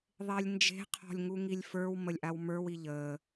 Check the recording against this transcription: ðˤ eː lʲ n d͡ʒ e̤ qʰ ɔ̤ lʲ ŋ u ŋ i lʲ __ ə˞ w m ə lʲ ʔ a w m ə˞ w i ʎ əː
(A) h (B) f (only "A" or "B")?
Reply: B